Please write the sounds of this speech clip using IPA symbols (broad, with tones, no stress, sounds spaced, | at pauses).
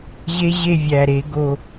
ʑ e˦ ʑ e˦˨ vʲ æ˨˩ ɾ e˧˩˧ ɡ o˨˩